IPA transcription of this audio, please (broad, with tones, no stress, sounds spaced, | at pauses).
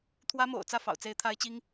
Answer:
t̪ʰ w ä˥ m o̰˨˩ ʊ̯ t͡s ä˥˩ f ɑ̰˨˩ ʊ̯ t͡s e˧˥ ɪ̯ t̪ʰ a˥ ɪ̯ t͡ɕ i˥ ŋ